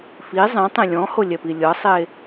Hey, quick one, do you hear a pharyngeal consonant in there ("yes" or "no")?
no